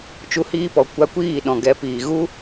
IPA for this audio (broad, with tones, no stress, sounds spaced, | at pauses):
t͡ʃ u˧ h iː˧ p ɔ˨ kʷ a˧ kʷ iː˦˨ ɗ ɔ̃˨ ɡ ɛ˨˦ p iː˨ ɣ u˦